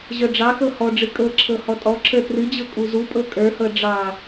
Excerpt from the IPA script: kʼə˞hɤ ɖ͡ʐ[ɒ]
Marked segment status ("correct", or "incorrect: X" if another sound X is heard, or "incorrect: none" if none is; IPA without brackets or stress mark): incorrect: ɑ